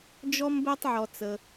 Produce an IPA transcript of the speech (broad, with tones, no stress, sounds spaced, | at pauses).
d͡ʒ ɔ˥ m b ɛ˥ tˤ ʕ ɔ˧ t͡s ə˧